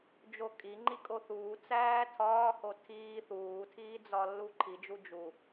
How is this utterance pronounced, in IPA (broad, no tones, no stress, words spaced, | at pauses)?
d͡ʒokʼi ŋ͡ǃikʼoθuː t͡sæːtʰɒːho tʰiː θuːtʰiːd͡zɒ lːuǃʰid͡ʒu d͡ʒu